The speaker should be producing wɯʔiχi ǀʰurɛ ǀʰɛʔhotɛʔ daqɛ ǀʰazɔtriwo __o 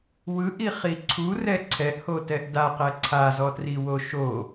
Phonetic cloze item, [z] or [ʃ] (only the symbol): ʃ